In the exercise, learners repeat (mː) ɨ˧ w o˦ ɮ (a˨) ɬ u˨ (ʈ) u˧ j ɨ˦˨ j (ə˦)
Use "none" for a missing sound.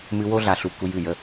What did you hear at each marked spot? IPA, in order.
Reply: m, a˨, k, ə˦

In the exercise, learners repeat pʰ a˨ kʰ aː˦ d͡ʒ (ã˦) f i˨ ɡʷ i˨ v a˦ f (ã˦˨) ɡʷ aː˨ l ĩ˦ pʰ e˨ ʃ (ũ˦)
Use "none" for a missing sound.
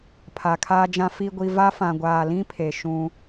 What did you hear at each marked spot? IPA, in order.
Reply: ã˦, ã˨, ũ˦

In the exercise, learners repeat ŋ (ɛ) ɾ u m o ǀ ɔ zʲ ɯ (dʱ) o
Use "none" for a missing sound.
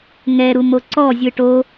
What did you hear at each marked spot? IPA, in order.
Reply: ɛ, ʈ

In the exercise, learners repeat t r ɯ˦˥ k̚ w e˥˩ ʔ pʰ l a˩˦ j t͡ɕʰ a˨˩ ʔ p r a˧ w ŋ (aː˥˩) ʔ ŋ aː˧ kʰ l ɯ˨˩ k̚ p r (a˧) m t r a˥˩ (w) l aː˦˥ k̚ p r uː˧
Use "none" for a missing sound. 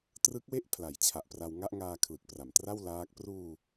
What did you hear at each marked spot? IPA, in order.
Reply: a˥˩, a˩˦, w

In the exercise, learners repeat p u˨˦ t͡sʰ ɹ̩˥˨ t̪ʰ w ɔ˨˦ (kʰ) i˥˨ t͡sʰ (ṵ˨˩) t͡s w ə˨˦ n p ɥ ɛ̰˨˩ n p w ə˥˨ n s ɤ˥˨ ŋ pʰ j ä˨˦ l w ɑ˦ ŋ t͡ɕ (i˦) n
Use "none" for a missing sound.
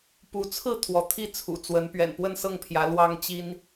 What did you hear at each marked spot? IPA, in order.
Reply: t̪ʰ, ṵ˨˩, i˦

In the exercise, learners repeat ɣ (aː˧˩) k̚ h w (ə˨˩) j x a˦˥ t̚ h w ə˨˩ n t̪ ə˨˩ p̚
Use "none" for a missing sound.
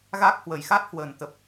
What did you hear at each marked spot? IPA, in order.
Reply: aː˦˥, ə˨˩

